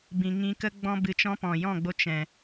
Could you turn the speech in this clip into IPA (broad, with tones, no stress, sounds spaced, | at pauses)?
b ĩ˨ ŋ ĩ˧ k ə˦ ɡ͡b ɔ̃˦ b ɨ˧ t͡ʃ ɔ̃˦ p ɔ̃˨ j ɔ̃˦˨ ɡ͡b o˧ t͡ʃ ɛ̃˨